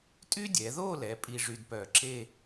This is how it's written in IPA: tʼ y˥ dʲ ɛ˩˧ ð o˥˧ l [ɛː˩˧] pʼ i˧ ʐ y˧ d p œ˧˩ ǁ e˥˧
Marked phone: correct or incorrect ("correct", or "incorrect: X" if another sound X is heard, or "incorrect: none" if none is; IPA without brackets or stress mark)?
incorrect: ɛ˩˧